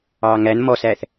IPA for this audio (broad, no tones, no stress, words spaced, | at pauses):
ɑŋæn mɔsæθ